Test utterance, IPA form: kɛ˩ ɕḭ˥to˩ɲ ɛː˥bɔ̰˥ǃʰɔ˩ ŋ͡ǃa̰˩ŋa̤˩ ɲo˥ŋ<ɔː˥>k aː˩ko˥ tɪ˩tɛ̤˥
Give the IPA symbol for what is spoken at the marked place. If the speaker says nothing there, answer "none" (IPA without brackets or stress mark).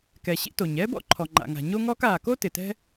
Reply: ɔː˥